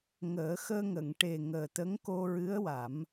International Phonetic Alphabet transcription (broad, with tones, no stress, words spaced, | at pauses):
ŋəː˨˩˦ xəː˧ŋə˨˩˨ŋʈe˨˩ ŋəː˨˩t̪ə˧˥ŋ ko˧ɹɨ˧˥ə̯wa˨˩˦m